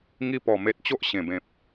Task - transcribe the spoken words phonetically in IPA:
ŋi˧pɔ˨˩ me˨t̚ t͡ɕo˦ʔɕẽ˨˩bẽ˨p̚

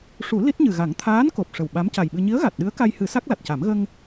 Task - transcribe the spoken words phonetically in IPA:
ʂu˨˩˦ li˦˥t̚ɲɨ˨˩ɣa˨˩˦ŋ t̪ʰaː˧˥n ko˨˩p̚ʂə˨˩w ɓa˧˥mca˨˩jɓɨ˧ ɲi˧˥ə̯ɣa˨˩t̚ ɗɨ˧˥ə̯ka˧jhɨ˨˩˦ sa˦˥k̚la˨˩t̚ca˨˩˦m ɣə˧ŋ

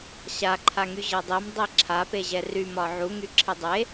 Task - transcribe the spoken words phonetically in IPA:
ɕa ǃʰaŋyʑɤdˤim dˤiǁʰa peʑɛry mɒʕu ŋyǁʰedˤe

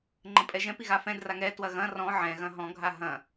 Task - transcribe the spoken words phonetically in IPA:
ŋ͡ǃə̃pʼɛʒɛ̃ piɣafɛ̃ draŋɛ twɐɣɐ̃ rɔ̃ ʕɛ̃ ɣɐ̃ɦɔ̃ ɡʱaɦɐ̃

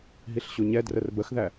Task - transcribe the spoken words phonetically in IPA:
ɦiɬɕuɲɛ drərbəxðæ

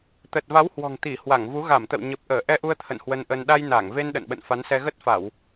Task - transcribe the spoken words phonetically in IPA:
t̪ə˨˩t̚va˨˦w hwɔ̤˨˩ŋt̪i˧˩hwa˧˩ŋvu˨˦ ɣa˧˩mt̪ə̰˧˨wɲə˨˩p̚ ʔəː˧˩ʔɛ˧ʔu˧ə̯ t̪ʰə̰˧˨n hwə˧nʔə˧n ɗa˧j na˧˩ŋ ve˧n ɗə̰˧˨nɓə̰˧˨nfa˨˦nsɛ˧ ɣə˦˥t̚fa˧˩˨w

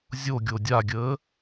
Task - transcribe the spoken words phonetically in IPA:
zʲoɡʲo dʲaɡʲəː

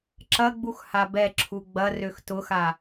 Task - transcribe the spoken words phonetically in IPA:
ǁɐɡ͡bux habɛǁʰu ɡ͡bɐrøx tʊxa

